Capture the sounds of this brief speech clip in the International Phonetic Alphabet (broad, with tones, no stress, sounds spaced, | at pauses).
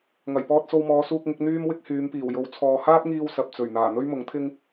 ŋ ɐ˨˩ j p ɔː˧ t̚ s o˧ w m ɔː˨˧ s uː˧ k̚ ŋ ɪ˨˥ k̚ n̪ yː˥ m w ɪ˥ k̚ h yː˨˧ m p iː˨˩ w j o˨˧ w t͡sʰ ɔː˨ h aː˥ p̚ ŋ iː˧ w s ɐ˨ p̚ t͡s ɵ˨˩ ɥ n̪ aː˨˩ n̪ ɵ˥ ɥ m ʊ˨˥ ŋ t̪ʰ ɪ˥ ŋ